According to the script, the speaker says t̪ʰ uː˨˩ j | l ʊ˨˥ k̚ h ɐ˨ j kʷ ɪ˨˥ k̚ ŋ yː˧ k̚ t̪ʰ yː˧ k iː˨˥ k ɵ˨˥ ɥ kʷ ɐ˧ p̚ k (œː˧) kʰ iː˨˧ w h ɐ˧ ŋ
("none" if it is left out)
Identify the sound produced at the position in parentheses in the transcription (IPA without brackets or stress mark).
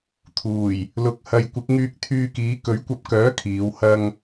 œː˨˥